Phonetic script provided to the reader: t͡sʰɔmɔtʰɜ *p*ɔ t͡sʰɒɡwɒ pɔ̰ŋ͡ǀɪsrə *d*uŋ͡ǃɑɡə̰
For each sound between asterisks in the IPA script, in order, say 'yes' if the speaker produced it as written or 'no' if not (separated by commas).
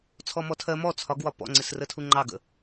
no, no